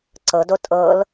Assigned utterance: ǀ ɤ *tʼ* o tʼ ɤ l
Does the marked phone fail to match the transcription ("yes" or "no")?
yes